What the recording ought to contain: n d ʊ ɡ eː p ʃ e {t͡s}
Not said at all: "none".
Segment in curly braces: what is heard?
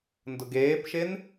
n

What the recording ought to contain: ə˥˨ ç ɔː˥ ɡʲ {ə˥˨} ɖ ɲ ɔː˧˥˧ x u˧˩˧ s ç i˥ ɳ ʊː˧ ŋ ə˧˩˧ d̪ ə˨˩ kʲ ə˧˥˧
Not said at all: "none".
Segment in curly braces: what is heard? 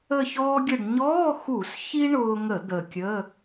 ə˥˨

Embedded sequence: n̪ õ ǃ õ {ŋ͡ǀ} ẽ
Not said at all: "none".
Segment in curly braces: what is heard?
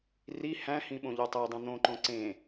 ǀ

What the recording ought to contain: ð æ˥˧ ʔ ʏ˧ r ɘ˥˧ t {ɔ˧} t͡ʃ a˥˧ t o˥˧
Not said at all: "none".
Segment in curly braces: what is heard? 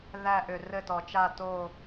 ɔ˧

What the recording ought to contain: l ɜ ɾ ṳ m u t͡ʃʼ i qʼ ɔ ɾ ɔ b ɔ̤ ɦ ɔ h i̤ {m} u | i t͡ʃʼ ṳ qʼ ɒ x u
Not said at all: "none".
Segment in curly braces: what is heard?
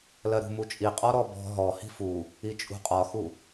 f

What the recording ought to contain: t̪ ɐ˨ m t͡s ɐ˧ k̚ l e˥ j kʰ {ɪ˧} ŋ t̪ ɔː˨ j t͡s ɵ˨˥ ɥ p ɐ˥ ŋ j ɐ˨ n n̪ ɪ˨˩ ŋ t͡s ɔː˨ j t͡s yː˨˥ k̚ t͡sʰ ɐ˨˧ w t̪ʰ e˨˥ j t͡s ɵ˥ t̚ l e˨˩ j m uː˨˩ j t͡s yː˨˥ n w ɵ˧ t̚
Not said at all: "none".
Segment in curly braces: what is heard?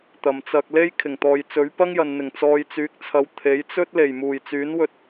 ɪ˨˩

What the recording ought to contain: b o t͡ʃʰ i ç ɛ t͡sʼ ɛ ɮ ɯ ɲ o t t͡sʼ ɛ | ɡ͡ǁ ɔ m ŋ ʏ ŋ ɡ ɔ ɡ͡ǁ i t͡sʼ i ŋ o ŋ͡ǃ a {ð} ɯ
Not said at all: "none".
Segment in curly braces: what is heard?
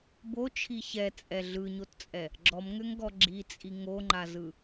z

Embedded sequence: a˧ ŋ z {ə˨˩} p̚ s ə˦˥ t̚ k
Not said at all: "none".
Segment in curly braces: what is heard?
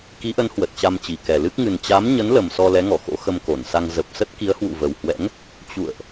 ə˨˩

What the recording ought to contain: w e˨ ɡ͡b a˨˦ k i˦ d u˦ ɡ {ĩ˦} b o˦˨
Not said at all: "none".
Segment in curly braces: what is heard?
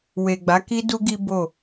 i˦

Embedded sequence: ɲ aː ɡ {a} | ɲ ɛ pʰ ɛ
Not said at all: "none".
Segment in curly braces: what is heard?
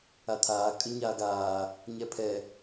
aː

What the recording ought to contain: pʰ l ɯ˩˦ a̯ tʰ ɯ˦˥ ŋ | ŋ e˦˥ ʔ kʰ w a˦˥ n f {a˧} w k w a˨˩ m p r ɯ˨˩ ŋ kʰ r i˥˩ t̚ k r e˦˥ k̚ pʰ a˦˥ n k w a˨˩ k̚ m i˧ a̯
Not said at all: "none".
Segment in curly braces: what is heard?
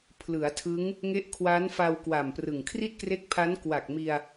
a˧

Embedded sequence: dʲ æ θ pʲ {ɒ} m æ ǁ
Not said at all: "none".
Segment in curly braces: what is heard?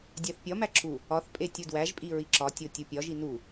ɒ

